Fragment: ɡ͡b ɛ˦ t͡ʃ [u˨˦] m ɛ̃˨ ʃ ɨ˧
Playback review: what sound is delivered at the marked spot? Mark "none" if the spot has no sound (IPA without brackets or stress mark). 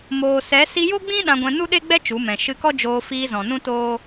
u˨˦